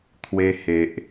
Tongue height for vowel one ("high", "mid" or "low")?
mid